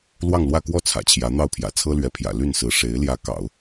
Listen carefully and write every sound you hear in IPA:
lwɑ˥˧ŋlwä˥˧kwɔ˥˩ t͡sʰä̰˨˩t͡ɕʰjä˧˥n̪ɑ˥˩ʊ̯pʰjä̰˨˩ t͡sʰɤ˥lɥɛ˧˥pʰjä̰˨˩ ly˥˩nsɹ̩˧˥ ʂe˧˥ɪ̯ ljä˧˥ kɑ̰˨˩˦ʊ̯

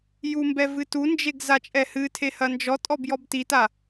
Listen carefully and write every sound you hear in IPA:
jumbɛ vɨtund͡ʒeɡ zat͡ʃʼɛhɨtʰe hɐnd͡ʒɔtʼɔb jɔbtita

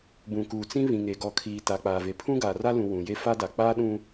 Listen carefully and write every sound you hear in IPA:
bũ˨kuː˨ t͡sĩ˦ βĩ˨ŋe˨ɡɔ˨kʰiː˨ ta˨k͡paː˨ve˨pʰũ˦ ɡaː˨ra˦lũ˨ wũ˨je˦ fa˦da˨ k͡paː˦ɗũ˦

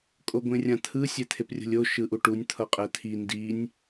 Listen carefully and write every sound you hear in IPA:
kʼoɡʷẽrʲãt̪ʰɯ sʲɛt̪ʰeprʲo̤lʲo ʃɯʔuʈunʲ t̪ʰʌqʼɛt̪ʰi ndinʲ

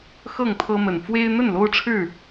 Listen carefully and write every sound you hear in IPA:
xɤ˥˨ŋt̪ʰɤ˦mə˨˩n fwe˦ɪ̯ n̪ə˥˨nlo˦ʊ̯ʈ͡ʂʰɻ̩˥˨

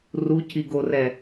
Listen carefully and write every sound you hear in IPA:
ruciɡorɛ

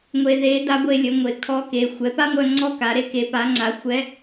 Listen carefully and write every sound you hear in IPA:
ŋʷe˧ðe˧˥da˧˥ ɡʷe˧lʲə˩˧ ŋʷe˩kʰɔ˧ ke˩˧ xʷɛ˩˧pa˥ŋʷœ˧ ŋ͡ǀɔ˥ka˩˧ɾe˥ ke˩˧pa˩˧ ŋ͡ǀa˩˧ xʷɛ˧˥

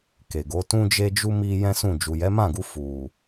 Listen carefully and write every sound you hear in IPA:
ke˨ɡo˨˦ tũ˦d͡ʒe˦d͡ʒu˦ mi˦ jɛ̃˦sũ˦˨ d͡ʒu˨jɛ˨˦mã˦˨ɡu˧ fu˨

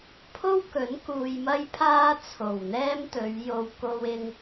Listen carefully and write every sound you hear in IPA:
pʰo˥wkɵ˨˥n kuː˧jmɐ˥jpʰaː˥ t͡sʰo˨˩wn̪ɛː˥mt̪ɵ˨˧ɥjo˧w ko˧wɪ˧ŋ

